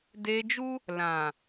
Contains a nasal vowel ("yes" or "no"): yes